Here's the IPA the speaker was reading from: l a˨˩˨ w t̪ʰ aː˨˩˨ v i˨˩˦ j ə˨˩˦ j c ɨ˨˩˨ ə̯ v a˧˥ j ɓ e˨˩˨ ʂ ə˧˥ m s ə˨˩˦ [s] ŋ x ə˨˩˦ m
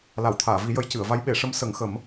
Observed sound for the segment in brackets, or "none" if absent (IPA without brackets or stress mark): none